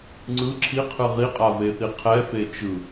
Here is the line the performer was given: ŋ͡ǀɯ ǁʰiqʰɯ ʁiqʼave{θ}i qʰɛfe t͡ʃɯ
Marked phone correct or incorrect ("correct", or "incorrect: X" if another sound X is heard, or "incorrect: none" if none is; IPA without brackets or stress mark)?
correct